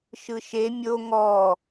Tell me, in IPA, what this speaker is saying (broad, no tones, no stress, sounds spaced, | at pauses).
ʃ ɯ ʃ e mʲ o ŋ ɔ